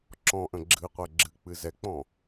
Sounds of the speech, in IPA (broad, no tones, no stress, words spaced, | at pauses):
ǁɔ̃ʔə̃ ɡ͡ǁɨqʷɛ ɡ͡ǁɨk͡pɨ zɛk͡pɔ̃